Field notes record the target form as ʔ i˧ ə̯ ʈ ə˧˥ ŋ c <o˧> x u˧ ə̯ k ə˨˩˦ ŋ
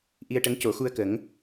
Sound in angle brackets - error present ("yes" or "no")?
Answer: yes